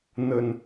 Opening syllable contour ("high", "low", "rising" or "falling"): low